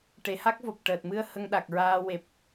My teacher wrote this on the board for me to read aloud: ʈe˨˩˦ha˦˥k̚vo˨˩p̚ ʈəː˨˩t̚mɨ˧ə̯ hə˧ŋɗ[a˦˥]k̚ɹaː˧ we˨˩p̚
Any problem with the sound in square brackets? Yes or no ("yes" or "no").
yes